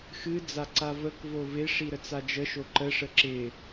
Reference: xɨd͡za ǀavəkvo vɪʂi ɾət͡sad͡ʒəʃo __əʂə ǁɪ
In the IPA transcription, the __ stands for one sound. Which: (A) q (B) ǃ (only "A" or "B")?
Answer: B